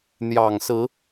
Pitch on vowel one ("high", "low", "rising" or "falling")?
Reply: low